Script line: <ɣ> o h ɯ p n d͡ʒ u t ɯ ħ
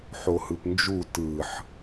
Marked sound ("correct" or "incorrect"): incorrect